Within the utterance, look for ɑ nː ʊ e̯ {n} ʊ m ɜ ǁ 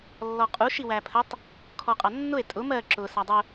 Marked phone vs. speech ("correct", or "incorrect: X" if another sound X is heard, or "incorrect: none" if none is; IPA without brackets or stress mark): incorrect: tʼ